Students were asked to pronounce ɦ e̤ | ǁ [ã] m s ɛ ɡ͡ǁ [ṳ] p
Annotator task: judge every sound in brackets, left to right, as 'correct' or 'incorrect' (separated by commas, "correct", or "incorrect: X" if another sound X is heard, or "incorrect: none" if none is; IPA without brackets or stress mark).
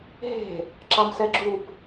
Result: incorrect: a, incorrect: u